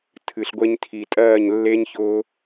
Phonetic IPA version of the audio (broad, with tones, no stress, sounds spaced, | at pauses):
tʰ ɨ˨ ɬ ɡʷ e˧ ɲ tʰ i˨ tʼ ɜː˦˨ ɲ lː e˦ ɲ ç ʊː˧